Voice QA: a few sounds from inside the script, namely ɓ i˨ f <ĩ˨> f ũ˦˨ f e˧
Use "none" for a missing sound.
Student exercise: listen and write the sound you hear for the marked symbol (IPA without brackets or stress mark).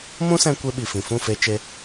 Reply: ĩ˨